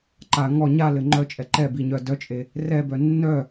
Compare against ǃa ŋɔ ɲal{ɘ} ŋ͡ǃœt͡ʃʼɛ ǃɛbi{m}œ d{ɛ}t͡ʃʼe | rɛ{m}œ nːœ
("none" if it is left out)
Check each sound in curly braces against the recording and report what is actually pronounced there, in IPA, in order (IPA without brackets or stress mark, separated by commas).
ɘ, ɲ, œ, b